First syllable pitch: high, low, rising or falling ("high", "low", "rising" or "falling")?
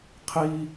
high